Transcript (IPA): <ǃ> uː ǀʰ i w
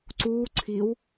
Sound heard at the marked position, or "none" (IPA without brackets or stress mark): ǀ